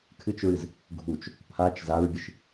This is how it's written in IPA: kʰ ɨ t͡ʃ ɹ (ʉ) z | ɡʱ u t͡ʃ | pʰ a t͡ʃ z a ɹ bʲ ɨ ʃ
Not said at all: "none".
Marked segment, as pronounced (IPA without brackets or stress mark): ɨ